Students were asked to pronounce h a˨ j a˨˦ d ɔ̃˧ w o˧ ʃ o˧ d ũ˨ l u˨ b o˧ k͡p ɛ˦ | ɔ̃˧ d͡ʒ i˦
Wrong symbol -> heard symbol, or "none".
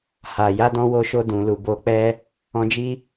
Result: none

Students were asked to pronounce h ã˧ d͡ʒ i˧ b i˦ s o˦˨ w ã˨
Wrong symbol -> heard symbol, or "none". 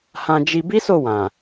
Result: none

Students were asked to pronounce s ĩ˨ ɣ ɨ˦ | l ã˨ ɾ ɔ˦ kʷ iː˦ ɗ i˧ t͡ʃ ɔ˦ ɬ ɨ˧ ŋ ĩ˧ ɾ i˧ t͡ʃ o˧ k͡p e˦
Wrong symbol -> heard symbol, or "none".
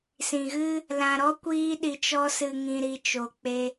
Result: ɬ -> s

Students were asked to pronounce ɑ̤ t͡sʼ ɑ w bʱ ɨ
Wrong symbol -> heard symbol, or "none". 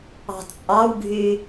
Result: none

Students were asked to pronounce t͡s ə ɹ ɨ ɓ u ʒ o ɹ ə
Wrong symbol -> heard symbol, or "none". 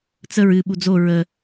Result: ʒ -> d͡z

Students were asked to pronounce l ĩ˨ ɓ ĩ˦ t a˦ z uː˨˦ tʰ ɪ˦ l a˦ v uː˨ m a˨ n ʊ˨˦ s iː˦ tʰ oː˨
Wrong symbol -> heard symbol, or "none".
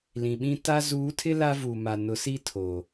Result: none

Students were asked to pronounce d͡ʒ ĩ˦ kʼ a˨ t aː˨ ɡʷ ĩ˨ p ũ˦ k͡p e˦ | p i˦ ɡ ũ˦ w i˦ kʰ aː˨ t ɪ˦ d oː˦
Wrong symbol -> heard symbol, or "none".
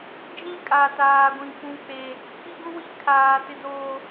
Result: none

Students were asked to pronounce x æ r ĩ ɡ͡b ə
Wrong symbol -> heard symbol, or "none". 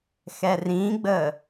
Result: æ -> ɛ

